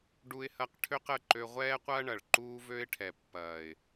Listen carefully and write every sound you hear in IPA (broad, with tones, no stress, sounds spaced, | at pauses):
ɖ u˧ ɪ̯ h ɐ˧ q ʈʰ ø˦ q ə˦˨ ǃ ø˧ ʁʷ ɛː˦ qʷ ɐː˦ ɳ ɐ˨ ɭ ǃ uː˦ v ø˦ ɪ̯ ʈʰ ɛ˨ pː ɐː˨ ɪ̯